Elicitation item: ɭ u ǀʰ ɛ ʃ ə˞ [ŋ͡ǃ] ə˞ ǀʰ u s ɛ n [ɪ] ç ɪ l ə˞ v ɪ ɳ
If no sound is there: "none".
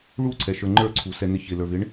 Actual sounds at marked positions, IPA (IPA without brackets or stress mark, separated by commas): ŋ͡ǃ, ɪ